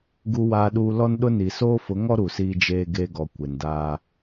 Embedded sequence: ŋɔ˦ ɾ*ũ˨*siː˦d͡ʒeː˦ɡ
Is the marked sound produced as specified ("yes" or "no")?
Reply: no